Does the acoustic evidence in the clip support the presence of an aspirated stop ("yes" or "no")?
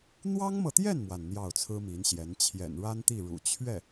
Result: yes